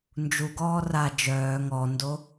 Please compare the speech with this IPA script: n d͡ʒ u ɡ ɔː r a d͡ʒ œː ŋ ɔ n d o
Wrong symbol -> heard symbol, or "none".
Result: none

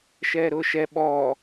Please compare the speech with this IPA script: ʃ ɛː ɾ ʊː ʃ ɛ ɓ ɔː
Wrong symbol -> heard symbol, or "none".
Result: none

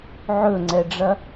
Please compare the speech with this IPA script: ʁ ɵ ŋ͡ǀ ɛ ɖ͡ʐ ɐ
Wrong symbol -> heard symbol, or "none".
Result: ʁ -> ʕ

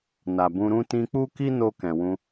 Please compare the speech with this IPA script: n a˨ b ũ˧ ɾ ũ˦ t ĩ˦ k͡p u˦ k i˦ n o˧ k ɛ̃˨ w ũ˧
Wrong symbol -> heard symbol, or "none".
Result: ĩ˦ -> ĩ˧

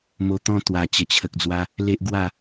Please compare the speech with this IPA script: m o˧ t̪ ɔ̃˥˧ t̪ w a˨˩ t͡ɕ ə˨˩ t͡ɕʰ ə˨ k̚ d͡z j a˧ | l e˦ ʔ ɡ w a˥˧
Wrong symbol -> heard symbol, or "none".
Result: j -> w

